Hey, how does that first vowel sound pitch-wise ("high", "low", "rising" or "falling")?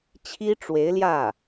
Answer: high